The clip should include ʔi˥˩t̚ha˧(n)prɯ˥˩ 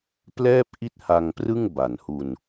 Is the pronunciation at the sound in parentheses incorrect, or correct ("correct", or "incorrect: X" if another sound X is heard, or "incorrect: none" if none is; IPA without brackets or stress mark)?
incorrect: ŋ